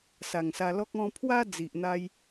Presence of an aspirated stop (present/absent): present